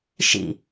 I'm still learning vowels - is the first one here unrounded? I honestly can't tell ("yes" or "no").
yes